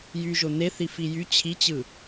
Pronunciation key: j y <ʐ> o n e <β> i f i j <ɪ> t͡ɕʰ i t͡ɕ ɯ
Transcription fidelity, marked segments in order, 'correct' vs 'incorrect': incorrect, incorrect, incorrect

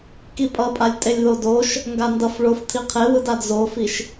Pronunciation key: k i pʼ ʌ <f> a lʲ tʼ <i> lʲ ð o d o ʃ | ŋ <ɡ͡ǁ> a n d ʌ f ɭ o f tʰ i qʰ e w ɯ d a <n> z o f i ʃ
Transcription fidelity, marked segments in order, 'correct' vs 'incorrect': incorrect, incorrect, incorrect, incorrect

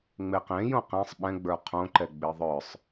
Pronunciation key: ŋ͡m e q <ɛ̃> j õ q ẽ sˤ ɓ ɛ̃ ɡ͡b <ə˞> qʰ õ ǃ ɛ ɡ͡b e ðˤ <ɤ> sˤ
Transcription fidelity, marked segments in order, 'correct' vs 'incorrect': incorrect, correct, incorrect

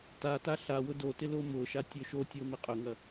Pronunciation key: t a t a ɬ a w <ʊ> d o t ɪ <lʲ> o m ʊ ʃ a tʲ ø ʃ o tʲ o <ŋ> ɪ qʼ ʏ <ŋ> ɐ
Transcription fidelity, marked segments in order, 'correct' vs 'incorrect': correct, incorrect, incorrect, correct

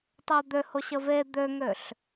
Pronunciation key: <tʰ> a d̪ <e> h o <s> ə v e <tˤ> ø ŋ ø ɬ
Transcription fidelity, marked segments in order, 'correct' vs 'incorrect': incorrect, incorrect, incorrect, incorrect

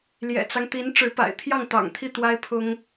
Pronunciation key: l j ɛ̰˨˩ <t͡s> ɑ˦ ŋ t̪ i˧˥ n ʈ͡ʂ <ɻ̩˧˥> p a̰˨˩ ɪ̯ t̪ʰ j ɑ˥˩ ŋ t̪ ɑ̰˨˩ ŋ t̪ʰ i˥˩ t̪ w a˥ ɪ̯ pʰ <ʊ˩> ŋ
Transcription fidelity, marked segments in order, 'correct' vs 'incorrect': correct, correct, incorrect

